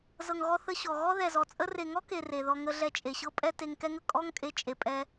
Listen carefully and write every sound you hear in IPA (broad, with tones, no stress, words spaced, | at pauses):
zɤ˨ŋɣɔ˧ θə˧ɕɔ˨ ɣɔ˦ðɛ˨zɔ˨t͡sʼə˦ re˨ŋɔ˦ke˨ re˨ðɔ˧ŋə˧ ɮɛ˧t͡ʃʼe˨ɕɤ˦pʼɛ˦ te˧ŋkɛ˦ŋə˨ kʼɔ˦ŋkʼe˧ t͡ʃʼe˨pʼɛ˧